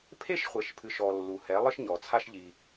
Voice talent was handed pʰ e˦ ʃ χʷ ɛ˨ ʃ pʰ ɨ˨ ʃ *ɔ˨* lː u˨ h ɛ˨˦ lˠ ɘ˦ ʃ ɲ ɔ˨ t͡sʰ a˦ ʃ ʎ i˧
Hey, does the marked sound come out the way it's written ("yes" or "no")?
yes